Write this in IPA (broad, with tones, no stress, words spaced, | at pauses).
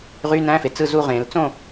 ʁy˧˥˧næ̃˧˥˧fe˩ t͡sɯ˦˨zu˦˨ʁẽ˨˩˦l t͡sõ˦˨